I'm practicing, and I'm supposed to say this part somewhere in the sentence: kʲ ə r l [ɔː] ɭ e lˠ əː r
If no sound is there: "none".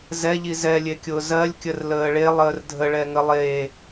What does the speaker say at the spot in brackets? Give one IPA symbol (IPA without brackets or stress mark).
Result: əː